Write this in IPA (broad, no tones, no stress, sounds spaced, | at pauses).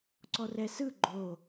ǀ ɔ r ɛ s ɯ ɡ͡ǃ o